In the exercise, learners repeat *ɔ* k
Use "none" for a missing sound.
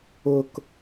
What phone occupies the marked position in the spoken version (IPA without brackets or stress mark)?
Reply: ʊ